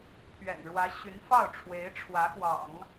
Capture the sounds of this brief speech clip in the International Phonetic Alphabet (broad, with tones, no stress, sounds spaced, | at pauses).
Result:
pʰ ɥ ɛ̰˨˩ n ɻ w ä˧˥ ɕ y˧˥ n f ɑ˥˩ ʊ̯ ʈ͡ʂʰ w e˧˥ ɪ̯ ʈ͡ʂʰ w ä˧˥ x w ɑ̰˨˩˦ ŋ